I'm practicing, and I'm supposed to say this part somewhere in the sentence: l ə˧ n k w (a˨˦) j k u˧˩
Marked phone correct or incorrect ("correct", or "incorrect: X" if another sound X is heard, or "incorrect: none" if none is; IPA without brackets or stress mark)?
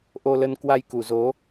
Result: incorrect: a˧